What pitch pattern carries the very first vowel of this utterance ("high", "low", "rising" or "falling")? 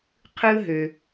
high